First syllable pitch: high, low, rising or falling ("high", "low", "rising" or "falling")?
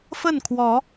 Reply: falling